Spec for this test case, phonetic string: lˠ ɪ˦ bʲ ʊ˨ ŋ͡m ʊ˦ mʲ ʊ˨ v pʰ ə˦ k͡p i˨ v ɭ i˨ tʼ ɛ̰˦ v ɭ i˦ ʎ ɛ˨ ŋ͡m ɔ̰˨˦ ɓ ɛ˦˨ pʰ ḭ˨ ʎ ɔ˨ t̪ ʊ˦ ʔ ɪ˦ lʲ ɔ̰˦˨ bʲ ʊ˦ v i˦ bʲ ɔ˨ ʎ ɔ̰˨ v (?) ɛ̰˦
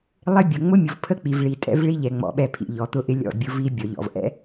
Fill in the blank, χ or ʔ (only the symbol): ʔ